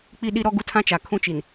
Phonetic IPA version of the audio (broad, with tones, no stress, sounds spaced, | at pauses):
k͡p i˦ ɗ i˦ ɾ ɔ˦ ɡ u˦ tʰ ã˦ t͡ʃ a˨ kʰ ũ˦ t͡ʃ i˨ n